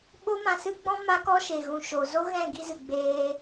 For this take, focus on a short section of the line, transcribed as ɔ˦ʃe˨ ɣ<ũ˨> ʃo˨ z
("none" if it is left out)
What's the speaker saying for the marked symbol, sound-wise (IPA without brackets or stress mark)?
ũ˨